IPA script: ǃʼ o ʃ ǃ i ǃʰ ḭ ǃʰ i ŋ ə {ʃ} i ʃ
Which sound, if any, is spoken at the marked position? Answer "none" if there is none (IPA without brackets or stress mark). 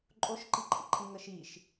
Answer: ʃ